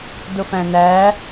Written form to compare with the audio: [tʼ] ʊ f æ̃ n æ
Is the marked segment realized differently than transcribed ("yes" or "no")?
yes